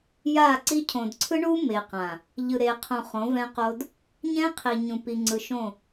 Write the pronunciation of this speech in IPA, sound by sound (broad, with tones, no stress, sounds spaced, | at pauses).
j a˦˨ ǀ i˦ cʰ õ˨ d ǀʰ ɯ˦ ɳ u˦ m e˨ q ã˨ | ʎ ɯ˨ ɾ e˨ qʰ õ˨ χ õ˨˦ v ɛ̃˦ q o˦ d | ɲ ɛ̃˦ qʰ i˨ ɲ ũ˨ p i˨ ŋ͡ǀ ɯ˨ ʃ õ˦˨